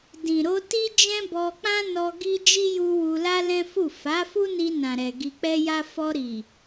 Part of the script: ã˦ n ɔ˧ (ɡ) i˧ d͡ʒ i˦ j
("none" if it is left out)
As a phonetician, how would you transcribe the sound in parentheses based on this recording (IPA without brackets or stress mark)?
ɡ